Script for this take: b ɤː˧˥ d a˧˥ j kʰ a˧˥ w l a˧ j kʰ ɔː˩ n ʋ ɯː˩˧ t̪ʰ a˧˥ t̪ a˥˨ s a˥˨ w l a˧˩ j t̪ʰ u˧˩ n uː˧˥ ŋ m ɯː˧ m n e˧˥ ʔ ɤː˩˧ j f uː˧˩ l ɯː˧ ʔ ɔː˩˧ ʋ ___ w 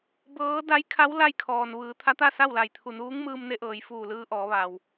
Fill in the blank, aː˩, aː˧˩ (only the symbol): aː˩